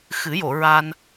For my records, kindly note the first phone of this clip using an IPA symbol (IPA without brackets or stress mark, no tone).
x